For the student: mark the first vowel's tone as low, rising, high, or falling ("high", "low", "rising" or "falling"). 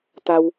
low